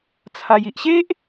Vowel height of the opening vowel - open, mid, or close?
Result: open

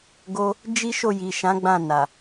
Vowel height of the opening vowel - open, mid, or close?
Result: mid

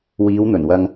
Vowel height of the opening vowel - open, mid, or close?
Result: close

